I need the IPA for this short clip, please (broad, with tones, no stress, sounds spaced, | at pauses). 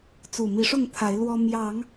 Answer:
t͡s u˨˩ m i˨˦ ʂ ʊ˥˨ ŋ t̪ʰ a˨˦ ɪ̯ l w ɔ˦ m j ɑ˨˦ ŋ